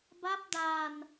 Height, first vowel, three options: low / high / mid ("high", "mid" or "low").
low